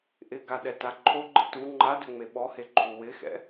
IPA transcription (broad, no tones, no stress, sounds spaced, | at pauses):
ʔ ɪ ɡ a ɗ ɛ t a ǃʰ o ɡ͡ǃ ɪ t u ŋ͡ǃ a d ʏ ŋ͡m e ɓ ɔ h e ǃʰ u w ɪ x ɛ̰